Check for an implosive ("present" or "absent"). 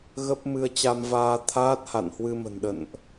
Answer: present